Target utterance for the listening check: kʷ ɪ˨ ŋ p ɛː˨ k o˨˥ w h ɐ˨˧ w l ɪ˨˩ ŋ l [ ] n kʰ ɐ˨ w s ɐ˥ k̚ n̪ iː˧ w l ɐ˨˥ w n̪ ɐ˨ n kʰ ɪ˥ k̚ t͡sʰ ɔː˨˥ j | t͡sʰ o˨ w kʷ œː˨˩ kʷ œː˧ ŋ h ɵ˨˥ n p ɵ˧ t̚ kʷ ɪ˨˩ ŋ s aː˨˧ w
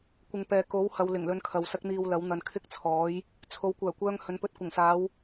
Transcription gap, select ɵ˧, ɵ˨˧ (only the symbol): ɵ˧